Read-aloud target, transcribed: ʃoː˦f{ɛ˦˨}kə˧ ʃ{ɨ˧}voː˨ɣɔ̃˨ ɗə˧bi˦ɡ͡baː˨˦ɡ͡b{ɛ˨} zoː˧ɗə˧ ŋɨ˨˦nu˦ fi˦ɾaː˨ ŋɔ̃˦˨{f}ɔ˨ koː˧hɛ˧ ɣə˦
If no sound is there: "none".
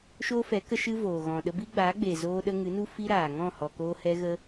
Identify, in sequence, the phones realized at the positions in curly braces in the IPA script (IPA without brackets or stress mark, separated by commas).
ɛ˨˦, ɨ˦, e˨, h